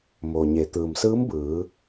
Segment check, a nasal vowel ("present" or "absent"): absent